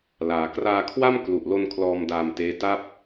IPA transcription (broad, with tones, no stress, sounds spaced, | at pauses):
l aː˩˦ k r aː˧ kʰ w a˥˩ m k l u˨˩ ʔ l o˧ n kʰ l ɔː˧ m d aː˧ m t eː˦˥ t a˥˩ p̚